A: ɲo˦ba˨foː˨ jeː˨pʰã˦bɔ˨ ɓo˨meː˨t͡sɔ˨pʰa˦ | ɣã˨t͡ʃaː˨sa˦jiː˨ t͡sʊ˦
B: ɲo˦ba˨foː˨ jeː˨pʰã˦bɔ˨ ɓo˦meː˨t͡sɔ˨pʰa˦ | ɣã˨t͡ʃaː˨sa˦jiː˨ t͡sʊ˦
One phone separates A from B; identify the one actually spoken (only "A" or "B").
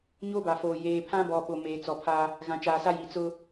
A